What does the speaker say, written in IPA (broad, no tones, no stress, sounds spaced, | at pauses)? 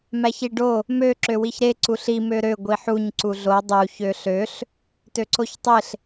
m æ ç i ɖ o | m ø ǁ ø w i ç ɾ e ǀ u ɬ i m ø ɾ ø ɡʷ i ħ u ɲ ǀ u ɮ o dˤ u ç ø ɬ ø ɬ | t ø ǀ o ç tˤ e ɬ